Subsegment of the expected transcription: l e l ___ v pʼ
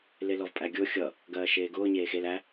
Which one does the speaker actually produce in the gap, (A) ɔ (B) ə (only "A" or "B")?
A